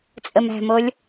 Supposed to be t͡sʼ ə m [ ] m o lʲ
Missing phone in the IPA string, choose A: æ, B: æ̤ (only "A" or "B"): B